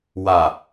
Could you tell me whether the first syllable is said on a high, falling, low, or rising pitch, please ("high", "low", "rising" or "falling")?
low